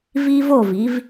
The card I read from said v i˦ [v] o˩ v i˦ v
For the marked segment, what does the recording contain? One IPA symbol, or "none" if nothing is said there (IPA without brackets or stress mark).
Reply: v